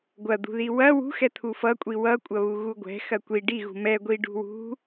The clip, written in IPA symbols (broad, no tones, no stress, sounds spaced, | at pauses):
ɡʷ ɐ d̪ ṳ ð i w ɐ w ṳ x ɛ t̪ʰ u f ʌ kʷʼ i w ʌ kʷʼ ɐ β u ɣ u ɡʷ ɛ̤ x ɐ kʷ i ɖ i ɣ ṳ m ɛ ɡʷ i ɖ ṳ w ṳ